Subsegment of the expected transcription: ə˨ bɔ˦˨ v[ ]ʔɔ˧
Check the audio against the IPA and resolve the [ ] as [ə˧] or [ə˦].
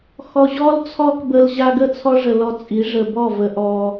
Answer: ə˧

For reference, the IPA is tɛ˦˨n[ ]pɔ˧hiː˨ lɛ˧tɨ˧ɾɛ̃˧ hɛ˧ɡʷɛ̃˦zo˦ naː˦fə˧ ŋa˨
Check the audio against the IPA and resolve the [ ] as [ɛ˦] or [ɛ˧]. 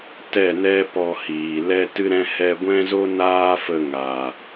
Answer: ɛ˦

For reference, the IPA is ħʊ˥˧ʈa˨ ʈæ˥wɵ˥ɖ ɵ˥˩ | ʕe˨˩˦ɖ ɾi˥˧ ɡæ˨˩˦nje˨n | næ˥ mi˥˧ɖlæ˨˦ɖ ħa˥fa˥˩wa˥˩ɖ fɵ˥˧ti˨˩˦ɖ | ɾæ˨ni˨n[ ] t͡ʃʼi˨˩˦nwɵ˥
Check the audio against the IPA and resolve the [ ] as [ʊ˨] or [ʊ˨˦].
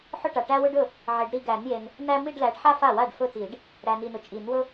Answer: ʊ˨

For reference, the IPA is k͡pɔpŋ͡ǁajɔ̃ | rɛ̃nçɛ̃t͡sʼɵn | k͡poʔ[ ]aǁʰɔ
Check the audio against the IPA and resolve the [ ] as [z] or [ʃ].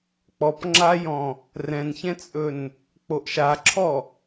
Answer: ʃ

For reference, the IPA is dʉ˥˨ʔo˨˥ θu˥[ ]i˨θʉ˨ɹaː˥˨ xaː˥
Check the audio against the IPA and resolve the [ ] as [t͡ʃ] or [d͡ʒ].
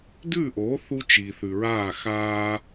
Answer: t͡ʃ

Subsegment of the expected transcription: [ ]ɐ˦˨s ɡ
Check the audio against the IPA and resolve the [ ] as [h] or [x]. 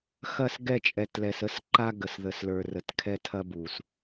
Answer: x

